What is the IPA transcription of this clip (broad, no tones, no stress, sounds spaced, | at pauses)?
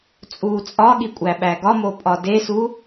t͡sʼ uː t͡sʼ ɒ ɠ i kʷʼ æ ɓ æ ɡ ɒ m o pʼ ɒ d e s u